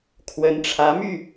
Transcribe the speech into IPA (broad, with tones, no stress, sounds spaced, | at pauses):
kʰ w ə˨˦ n ʈ͡ʂʰ ä˨˦ m y˥˨